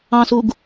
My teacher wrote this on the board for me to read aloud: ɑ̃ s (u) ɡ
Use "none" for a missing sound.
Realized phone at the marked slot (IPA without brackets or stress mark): u